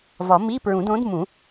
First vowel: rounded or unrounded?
rounded